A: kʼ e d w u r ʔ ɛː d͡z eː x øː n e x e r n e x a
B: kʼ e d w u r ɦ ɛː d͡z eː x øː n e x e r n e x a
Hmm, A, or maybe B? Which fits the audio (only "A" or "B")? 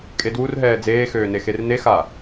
B